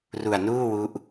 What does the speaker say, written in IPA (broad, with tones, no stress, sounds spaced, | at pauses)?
r u˨˩ a̯ n uː˥˩ w u˦˥ ʔ